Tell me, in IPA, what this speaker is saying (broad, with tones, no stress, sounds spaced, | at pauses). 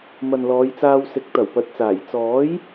m ɐ˨ n l ɔː˨˧ j t͡s aː˧ w s ɪ˨˥ k̚ t̪ ɐ˨˩ w p ɐ˨˥ t̚ t͡s aː˨˩ j t͡s ɔː˨˥ j